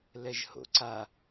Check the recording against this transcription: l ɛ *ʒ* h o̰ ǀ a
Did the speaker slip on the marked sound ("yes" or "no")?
no